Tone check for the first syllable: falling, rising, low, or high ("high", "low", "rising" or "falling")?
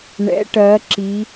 rising